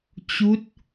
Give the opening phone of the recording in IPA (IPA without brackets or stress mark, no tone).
t͡ɕ